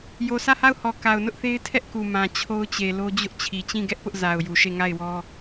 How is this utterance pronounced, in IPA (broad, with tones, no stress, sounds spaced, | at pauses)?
j o˨ sʰ ä˦˨ h a˦˨ ʊ̯ h ɔ˨ k a˨ ʊ̯ n ʊ˦ ʔ θ e˦ ɪ̯ tʰ ɛ˦ ʔ k u˨ m ã˨ t͡ɕʰ o˦ ʊ̯ t͡ɕ e˨ l o˦ d͡ʑ ʊ˦ ʔ t͡ɕʰ i˨ t͡ɕ ĩ˦˨ ɡ ɛ˦ ʔ p ʊ˦ ʔ z a˨ ʊ̯ j u˨ ʃ e˦˨ ŋ a˦˨ ɪ̯ w ɔ˦